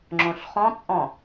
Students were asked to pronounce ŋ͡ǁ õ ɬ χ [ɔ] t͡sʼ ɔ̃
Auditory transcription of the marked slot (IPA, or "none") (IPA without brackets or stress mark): ɔ̃